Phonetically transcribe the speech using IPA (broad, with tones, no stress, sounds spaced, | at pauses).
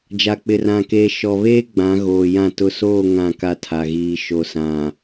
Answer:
d͡ʒ a˨ k͡p ɪ˨ r ã˨ k eː˨ ʃ ɔ˨ β eː˦ ɡ͡b ã˨˦ ɣ oː˨ j ã˦˨ t ʊ˨ s oː˦˨ ŋ ã˦˨ k a˦ tʰ a˨ ɣ iː˨ ʃ o˨ s ã˨